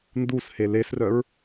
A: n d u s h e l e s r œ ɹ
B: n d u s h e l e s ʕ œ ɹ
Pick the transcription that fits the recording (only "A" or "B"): A